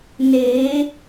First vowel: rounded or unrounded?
unrounded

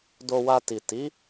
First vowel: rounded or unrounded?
rounded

